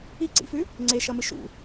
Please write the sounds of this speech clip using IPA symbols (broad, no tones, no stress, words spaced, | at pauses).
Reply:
iǀḭfʉ | ŋ͡ǀeʃɐmɨ ʃṵ